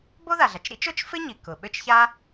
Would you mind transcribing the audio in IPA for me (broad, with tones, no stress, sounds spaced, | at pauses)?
b o˥ ð a˩ ɮ a˩ t͡ʃ ɾ ḭ˥ t͡ʃ o˥ t͡ʃ f ɪ˥ ɲ i˩ k ʊ˩ ɓ ʏ˥ t͡ʃ ç a˥